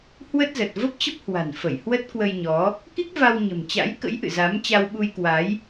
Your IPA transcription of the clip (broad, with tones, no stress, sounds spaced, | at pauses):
h w ə˦˥ t̚ z ə˨˩ t̚ v ə˦˥ p̚ t͡ɕ ə˦˥ p̚ h w a̤˨˩ n f ə˧˩ j h w ə˦˥ t̚ k w ə˧ j ɲ ɔ˨˦ | k i˦˥ k̚ v a˧ w ɲ ə̤˨˩ m t͡ɕ a̰˧˥ j k ə̰˧˥ j ʔ ɨ̰˧˨ z a˨˦ m t͡ɕ a˧ w ɓ u˧ j k w a˨˦ j